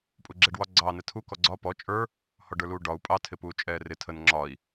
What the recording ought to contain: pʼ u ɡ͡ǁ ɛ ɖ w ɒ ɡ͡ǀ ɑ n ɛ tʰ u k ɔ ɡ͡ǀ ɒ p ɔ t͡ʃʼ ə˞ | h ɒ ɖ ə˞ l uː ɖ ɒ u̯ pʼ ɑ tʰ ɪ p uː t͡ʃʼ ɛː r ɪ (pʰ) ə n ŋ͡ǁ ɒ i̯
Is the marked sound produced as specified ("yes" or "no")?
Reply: no